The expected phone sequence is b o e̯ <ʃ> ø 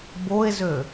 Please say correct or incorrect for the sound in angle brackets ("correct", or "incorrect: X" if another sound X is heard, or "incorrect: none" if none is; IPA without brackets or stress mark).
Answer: incorrect: z